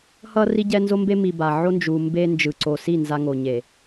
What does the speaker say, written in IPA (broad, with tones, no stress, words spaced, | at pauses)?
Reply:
hʌ˦ ri˦ɟɛ˦ nzo˦mbe˦mi˨ ba˨ ʕo˦nd͡ʒu˨mbe˦ nd͡ʒɯ˨ǀo˨si˦˨ nza˦ŋo˨ ɲe˨